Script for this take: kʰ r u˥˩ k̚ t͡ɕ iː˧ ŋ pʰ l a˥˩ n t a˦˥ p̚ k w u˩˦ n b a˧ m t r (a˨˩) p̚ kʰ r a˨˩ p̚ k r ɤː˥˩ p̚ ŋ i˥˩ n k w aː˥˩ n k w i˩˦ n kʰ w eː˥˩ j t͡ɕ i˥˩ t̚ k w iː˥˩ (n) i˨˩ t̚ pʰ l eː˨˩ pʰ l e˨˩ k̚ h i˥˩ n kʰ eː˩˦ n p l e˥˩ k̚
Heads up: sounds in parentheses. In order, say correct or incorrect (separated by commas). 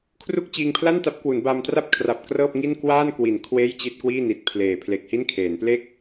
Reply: incorrect, correct